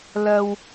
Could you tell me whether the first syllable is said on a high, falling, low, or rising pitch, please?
low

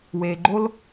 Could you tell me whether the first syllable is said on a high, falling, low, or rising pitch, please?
low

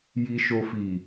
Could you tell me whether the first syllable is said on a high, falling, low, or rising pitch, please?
low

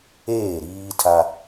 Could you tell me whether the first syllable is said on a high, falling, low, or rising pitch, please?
falling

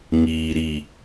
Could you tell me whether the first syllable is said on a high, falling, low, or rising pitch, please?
low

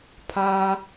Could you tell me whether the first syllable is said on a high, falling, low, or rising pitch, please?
high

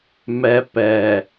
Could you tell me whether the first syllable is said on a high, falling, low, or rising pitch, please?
low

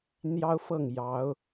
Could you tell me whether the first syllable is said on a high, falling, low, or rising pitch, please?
high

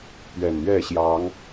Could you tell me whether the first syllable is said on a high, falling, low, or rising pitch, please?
low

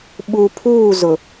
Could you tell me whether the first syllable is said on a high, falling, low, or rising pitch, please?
low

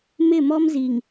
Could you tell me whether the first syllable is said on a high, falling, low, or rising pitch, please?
falling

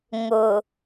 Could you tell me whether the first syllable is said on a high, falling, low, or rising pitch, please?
low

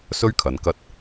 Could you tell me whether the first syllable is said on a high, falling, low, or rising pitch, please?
high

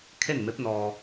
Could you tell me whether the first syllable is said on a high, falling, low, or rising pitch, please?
falling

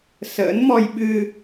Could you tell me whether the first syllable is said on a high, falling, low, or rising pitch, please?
rising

